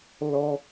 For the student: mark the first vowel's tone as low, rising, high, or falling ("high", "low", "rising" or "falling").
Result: high